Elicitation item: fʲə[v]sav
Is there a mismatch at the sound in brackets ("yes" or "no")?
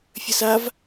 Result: yes